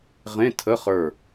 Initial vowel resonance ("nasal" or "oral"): nasal